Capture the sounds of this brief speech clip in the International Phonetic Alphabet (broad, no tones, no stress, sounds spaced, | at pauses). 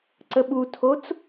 ǀ ə ɓ u tʰ o t͡s